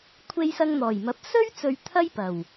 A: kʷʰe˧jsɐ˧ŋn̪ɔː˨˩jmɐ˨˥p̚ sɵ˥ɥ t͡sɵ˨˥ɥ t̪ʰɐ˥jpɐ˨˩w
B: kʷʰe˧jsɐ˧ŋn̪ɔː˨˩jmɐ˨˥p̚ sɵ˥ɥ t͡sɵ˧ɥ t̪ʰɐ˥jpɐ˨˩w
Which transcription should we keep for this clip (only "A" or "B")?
B